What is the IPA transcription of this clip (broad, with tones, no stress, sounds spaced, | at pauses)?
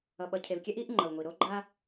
ʌ˨ ɓ ʌ˨ cʰ e˨ v kʲ ɛ˦ ʔ i˨˦ ʔ ŋ͡ǃ ʌ˨ w ŋʷ i˨ ɾ o˦ ɡ͡ǃ a˦